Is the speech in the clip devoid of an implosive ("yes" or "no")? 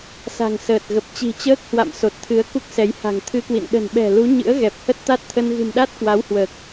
no